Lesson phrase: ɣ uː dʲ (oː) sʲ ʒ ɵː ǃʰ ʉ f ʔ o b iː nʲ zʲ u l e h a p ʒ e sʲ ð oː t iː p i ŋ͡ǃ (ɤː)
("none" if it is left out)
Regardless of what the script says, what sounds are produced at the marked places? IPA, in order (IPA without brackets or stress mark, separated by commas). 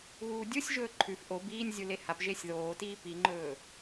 o, ɵː